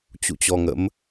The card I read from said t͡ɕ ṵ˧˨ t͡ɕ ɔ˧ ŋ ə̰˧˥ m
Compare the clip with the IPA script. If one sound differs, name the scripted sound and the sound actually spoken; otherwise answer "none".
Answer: none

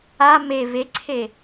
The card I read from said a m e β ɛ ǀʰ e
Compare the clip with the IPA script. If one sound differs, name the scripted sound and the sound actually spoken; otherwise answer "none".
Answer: ɛ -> e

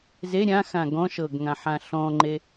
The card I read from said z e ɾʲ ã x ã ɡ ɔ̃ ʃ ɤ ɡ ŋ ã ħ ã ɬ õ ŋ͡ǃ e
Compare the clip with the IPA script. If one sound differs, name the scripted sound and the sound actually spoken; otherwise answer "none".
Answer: õ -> ɔ̃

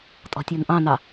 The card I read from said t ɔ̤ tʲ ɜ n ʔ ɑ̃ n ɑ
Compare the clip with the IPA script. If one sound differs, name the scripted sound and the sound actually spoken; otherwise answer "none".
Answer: t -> tʼ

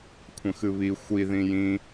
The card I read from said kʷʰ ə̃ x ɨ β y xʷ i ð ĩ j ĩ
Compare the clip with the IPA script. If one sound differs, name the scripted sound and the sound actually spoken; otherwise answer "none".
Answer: y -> i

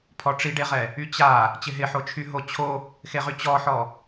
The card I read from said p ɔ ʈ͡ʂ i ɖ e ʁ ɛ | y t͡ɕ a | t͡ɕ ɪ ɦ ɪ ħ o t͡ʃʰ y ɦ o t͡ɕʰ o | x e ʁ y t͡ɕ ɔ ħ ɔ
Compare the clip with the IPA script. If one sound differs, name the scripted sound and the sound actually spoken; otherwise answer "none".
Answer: p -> pʰ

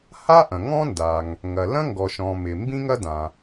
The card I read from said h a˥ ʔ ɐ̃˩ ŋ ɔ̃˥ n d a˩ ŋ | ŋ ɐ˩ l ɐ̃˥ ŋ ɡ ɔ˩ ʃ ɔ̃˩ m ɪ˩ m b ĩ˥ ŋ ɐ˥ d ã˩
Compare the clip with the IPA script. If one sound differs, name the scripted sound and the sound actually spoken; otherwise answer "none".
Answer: none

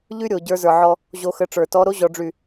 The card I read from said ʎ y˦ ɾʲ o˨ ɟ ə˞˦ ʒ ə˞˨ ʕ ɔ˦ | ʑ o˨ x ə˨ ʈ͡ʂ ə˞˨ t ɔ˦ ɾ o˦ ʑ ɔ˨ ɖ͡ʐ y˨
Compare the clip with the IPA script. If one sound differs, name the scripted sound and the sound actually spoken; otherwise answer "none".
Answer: ʒ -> z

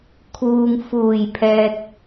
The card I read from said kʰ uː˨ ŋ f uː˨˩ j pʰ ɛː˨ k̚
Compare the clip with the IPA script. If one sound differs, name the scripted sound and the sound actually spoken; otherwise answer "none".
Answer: none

